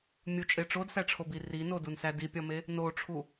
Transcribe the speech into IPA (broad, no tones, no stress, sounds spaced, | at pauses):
mʲ u t͡ʃʼ e ʈ͡ʂ o d s æ ʈ͡ʂʰ o b i r i n o d u n s æ d i pʲ ɒ m e | n o ʈ͡ʂʰ u